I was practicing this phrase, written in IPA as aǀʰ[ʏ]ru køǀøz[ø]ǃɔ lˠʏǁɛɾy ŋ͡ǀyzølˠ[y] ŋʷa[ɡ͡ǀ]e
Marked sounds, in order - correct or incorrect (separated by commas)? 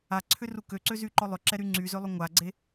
correct, incorrect, incorrect, correct